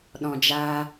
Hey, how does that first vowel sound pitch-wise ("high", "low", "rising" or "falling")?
low